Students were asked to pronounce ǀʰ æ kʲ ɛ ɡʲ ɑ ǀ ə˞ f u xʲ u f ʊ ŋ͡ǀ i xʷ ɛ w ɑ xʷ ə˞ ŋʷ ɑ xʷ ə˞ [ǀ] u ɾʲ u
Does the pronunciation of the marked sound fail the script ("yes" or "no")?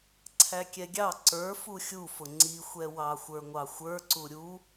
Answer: no